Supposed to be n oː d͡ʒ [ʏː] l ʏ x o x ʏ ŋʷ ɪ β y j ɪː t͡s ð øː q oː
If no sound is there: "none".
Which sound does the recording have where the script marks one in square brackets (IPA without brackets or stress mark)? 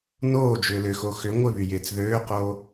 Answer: ʏː